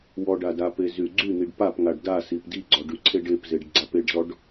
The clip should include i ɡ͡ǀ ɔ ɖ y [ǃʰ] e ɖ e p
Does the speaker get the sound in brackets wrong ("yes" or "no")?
yes